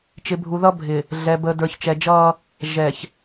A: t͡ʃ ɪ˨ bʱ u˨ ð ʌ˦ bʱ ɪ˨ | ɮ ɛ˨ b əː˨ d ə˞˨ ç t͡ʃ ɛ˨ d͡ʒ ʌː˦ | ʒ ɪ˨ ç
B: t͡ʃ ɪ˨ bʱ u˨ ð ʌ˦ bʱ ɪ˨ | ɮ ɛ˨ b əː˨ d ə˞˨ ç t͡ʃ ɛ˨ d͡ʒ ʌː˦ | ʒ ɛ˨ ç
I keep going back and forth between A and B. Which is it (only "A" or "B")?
B